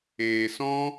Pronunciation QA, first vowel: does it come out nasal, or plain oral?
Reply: oral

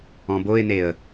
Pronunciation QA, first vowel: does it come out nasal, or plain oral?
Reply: nasal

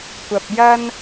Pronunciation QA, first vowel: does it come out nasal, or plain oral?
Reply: oral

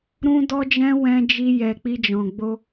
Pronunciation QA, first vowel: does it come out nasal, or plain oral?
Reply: nasal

